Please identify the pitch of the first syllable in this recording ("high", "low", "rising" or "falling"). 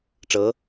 rising